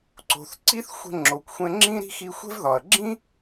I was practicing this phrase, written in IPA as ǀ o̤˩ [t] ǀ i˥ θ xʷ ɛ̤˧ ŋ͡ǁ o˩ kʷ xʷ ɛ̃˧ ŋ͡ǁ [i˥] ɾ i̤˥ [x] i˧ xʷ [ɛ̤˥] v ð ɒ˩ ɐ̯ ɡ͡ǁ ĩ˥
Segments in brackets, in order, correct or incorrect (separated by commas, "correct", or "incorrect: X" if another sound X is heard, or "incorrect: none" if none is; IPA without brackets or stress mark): incorrect: θ, incorrect: ĩ˥, correct, correct